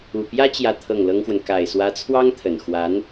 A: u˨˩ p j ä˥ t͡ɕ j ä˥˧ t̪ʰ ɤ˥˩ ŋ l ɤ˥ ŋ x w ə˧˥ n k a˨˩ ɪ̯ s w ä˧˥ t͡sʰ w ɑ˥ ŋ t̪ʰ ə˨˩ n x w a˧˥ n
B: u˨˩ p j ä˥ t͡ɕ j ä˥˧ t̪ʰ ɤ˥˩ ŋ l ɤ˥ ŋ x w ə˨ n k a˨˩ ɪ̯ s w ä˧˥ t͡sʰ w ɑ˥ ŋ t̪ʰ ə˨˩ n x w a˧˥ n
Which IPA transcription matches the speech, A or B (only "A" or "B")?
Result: B